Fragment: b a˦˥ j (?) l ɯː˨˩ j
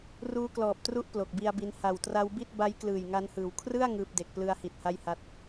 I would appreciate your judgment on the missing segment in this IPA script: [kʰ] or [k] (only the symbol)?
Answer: k